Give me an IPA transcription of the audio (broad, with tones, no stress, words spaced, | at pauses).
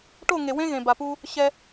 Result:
ʈo˦˨ŋe˨wẽ˦ ɣẽ˨ba˨pu˦ | ɕɛ˦